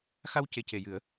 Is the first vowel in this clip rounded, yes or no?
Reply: no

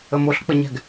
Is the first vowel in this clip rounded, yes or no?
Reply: no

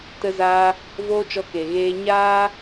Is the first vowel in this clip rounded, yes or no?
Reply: no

